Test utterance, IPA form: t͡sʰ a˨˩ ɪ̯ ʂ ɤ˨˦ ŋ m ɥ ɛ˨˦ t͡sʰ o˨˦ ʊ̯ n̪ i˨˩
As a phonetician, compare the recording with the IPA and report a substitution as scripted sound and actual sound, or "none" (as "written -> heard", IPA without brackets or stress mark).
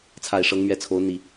none